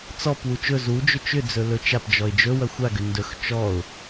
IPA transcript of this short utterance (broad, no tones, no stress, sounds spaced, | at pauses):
t͡s ɔ p w u t͡ʃ ɵ z u d͡ʒ ʏ t͡ʃ ʏ d͡z ɵ l ɵ t͡ʃ a p d͡ʒ ɔ ɪ̯ d͡ʒ ɵ w ɐ xʷ a ɡ ʏ n d ɵ x t͡ʃ ɔ ʊ̯